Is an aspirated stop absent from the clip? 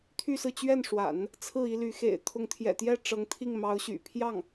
no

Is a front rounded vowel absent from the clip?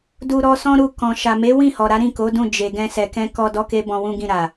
yes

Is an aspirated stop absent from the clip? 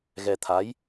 no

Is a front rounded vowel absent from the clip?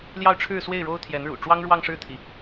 yes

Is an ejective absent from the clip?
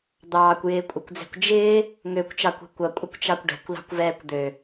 no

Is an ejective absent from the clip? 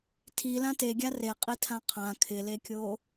no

